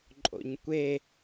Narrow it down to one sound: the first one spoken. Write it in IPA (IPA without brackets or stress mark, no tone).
ǃʼ